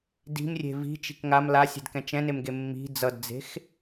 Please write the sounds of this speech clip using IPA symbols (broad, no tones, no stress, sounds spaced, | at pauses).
d i̤ m rʲ e̤ v i̤ t͡ʃ i̤ k ŋ a m l a sʲ ɛ̤ d k ɛ̃ t͡ʃ ɛ̃ n e m ɡ e mː i̤ d͡z ʌ d d͡z e̤ x